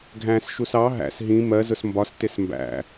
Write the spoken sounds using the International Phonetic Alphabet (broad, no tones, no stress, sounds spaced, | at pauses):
ɡʱ æ̃ s ʃ u s ɑ ɦ æ̰ s ɦ ĩ m ɜ z ʊ s m b ɒ s t ɪ s m b æ̰